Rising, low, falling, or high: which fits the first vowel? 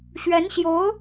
rising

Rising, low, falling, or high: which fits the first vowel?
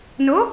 rising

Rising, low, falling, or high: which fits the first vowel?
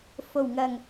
low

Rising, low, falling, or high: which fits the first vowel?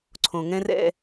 low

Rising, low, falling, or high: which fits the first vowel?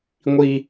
high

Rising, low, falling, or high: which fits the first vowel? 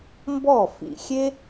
falling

